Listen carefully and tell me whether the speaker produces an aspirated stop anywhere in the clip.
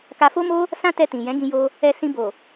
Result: no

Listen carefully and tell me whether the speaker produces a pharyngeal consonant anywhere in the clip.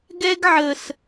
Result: yes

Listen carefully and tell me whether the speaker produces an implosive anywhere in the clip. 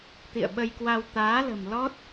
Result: yes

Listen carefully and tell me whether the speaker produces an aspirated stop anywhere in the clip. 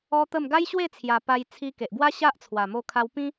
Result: yes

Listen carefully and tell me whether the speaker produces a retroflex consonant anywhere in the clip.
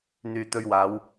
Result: no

